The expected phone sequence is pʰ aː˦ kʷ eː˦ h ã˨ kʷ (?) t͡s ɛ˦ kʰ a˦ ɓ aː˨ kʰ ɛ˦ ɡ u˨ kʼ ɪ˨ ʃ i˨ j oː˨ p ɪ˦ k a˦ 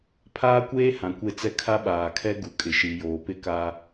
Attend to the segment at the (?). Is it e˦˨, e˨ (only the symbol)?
e˦˨